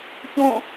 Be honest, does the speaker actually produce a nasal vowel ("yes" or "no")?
yes